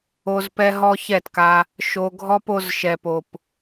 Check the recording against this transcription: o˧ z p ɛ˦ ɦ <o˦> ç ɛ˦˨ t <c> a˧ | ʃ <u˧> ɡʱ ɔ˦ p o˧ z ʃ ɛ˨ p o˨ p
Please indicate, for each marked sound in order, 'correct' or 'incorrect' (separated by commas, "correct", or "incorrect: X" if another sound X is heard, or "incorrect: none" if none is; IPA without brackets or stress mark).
incorrect: ɔ˦, incorrect: k, incorrect: o˧